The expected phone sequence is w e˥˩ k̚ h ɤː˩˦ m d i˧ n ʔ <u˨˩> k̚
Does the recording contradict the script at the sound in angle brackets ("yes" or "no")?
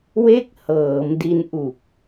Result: no